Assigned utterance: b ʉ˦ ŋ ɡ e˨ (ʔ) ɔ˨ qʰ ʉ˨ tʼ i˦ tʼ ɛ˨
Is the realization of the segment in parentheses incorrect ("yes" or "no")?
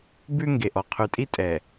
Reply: no